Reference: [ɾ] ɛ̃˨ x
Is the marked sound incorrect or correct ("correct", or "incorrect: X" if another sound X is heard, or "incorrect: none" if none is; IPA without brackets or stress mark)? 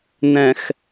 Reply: incorrect: n